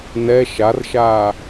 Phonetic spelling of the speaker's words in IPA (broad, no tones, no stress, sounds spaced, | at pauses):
n ɛ ʃ a r ʃ aː